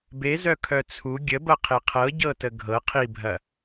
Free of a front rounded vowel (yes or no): no